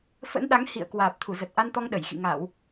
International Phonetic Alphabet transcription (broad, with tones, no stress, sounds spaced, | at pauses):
f ə̰˧˥ n ɗ a˨˦ ŋ h ḭ˧˨ ə̯ k w aː˨˩ p̚ t̪ʰ u˧˩ z ə˨˩ t̚ ʔ a˧ n t̪ ɔ˧ ŋ ɗ ə˧˩ j x ḭ˧˨ ŋ a˧˩˨ w